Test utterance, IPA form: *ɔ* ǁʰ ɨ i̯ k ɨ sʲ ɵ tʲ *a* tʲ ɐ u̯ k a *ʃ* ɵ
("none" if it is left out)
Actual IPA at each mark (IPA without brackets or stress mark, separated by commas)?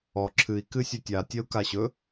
ɔ, a, ɕ